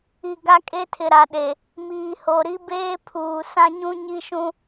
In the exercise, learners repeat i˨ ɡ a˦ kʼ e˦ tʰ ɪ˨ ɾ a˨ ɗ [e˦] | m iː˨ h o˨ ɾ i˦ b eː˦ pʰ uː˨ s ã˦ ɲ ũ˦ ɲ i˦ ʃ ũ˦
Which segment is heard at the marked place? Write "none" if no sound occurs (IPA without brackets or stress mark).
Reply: e˨